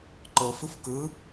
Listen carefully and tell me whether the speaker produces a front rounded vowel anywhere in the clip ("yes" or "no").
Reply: no